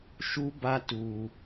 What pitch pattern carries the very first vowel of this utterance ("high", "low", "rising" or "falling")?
high